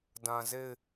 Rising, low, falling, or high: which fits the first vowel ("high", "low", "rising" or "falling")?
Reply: low